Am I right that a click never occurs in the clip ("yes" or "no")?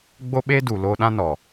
yes